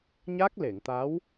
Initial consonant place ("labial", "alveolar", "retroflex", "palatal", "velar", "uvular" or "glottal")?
palatal